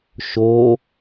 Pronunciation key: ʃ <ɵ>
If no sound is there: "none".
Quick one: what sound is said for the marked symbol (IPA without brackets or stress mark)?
o